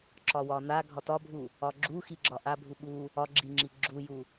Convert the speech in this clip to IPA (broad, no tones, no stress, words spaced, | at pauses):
ǁɒwɒna ɡʱɒtɒbʱu | ɒɡ͡ǁuxiɡ͡ǁɒ ʔa bʱuɓu | ɒɡ͡ǁiŋ͡ǁi ɡ͡ǁuju